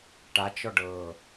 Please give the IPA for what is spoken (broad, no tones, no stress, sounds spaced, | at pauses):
ʈ a t͡ʃ ɔ ɖ ɤ